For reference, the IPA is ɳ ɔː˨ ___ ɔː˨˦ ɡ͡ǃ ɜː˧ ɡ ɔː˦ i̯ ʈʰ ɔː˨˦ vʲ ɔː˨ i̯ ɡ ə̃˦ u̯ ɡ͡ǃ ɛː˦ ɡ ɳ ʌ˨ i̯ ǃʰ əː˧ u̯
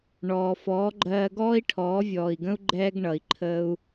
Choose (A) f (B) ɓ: A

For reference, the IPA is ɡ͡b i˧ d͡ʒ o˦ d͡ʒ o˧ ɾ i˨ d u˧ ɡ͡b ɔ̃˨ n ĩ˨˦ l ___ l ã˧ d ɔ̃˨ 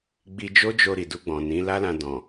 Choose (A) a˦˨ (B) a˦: B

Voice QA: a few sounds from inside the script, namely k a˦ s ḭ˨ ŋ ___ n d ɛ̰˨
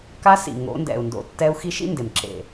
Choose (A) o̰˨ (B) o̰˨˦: B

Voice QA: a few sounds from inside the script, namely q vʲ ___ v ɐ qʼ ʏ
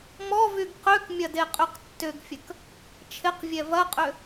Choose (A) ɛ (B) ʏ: A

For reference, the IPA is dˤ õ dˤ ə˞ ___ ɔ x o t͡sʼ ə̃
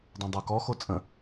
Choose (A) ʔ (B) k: B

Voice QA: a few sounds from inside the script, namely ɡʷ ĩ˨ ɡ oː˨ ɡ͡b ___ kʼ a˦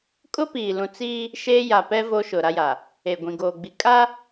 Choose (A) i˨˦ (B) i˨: B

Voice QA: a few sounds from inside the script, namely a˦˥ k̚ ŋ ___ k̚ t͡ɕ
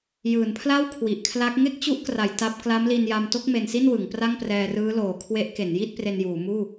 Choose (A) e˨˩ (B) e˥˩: B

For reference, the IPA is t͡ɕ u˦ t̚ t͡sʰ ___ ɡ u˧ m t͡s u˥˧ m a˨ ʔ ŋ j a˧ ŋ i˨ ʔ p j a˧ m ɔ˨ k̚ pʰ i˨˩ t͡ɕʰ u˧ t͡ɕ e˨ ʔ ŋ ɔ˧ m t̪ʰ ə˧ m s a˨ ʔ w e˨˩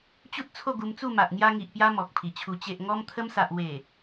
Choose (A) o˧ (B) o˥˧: B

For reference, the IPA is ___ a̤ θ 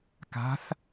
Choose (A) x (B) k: B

